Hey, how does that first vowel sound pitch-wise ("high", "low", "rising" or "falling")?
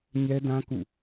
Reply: high